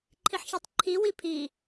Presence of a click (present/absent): present